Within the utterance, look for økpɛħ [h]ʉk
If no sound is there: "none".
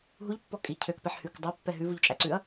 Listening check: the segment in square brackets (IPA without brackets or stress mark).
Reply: h